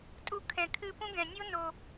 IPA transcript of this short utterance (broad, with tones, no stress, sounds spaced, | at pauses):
tʼ u˧ kʰ ɛ̃˨ kʰ ɨ˧ p ũ˦ ɡ ɛ̃˨ nʲ o˦ n o˧